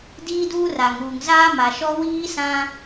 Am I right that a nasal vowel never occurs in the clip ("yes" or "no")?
no